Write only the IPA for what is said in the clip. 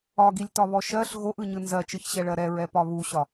ɒ ɡ i lʲ t ɒ β ɔ ʃ ɜ ɬ ɣ o ʔ ɯ ɲ ɯ n z ɜ t͡ʃ ɯ ç ɕ ɛ ɭ ɜ ɾ ɛ ɹ ɛ p ɒ β u ɕ ɒ

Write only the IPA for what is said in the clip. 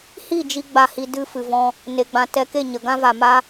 h i˦˨ d͡ʒ i˦ ɡ͡b a˧ h i˧ d ɨ˧ f ɨ˨ v ɔ̃˧ | n e˨ ɡ͡b ã˨ t ɛ˧ k e˦˨ ɲ ə˨ ɡ ã˦ v a˨ m a˦

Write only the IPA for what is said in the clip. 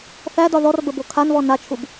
θ æ d ɒ ð ɔ r b ə b o kʰ a n β ɔ n a t͡ʃʰ u b

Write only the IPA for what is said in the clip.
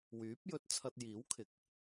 w yː˨˥ p̚ j ɵ˧ t̚ t͡sʰ ɐ˧ t̚ j iː˨˥ w kʰ ɪ˨ k̚

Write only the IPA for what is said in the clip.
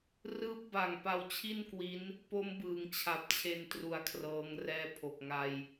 r ɯː˦˥ p̚ b a˨˩ ŋ p a˧ w t͡ɕʰ i˥˩ n k w i˦˥ n | p o˦˥ m b ɯː˩˦ ŋ t͡ɕʰ a˨˩ p̚ t͡ɕʰ e˧ n t r u˧ a̯ kʰ r ɤː˦˥ ŋ r ɛː˦˥ pʰ o˨˩ k̚ ŋ a˧ j

